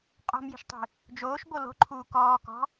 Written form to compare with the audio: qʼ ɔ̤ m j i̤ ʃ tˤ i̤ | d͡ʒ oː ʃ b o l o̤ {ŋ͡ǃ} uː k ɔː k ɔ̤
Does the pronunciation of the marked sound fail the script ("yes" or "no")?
yes